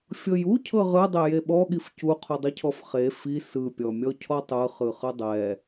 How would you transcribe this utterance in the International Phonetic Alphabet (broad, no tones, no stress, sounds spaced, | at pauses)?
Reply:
fʲ ɤ j u cʰ ɤ ʁ ɯ dˤ e j e ɓ ɔ ɠ i f c u qʰ u dˤ i cʰ ɔ f χ e f i s ɯ pʲ ɔ mʲ ɔ cʰ ɔ tˤ ɯ χ ɯ χ ɯ dˤ ɛ